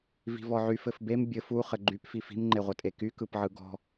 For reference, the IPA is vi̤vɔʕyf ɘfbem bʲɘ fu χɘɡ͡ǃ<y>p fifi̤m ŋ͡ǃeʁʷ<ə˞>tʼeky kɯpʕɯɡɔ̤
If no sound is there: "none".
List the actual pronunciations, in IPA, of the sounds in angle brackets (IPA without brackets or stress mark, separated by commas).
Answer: y, ʌ